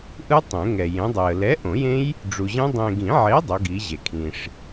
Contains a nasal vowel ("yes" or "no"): yes